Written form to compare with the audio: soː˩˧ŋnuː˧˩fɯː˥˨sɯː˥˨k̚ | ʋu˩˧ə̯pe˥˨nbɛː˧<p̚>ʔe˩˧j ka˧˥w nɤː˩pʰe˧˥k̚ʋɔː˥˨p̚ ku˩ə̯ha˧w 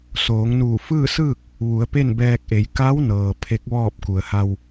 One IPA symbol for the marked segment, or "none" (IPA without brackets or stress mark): k̚